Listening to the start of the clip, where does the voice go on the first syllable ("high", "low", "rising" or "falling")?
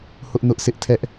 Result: high